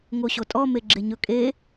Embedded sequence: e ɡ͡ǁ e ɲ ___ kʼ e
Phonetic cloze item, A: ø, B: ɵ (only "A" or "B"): B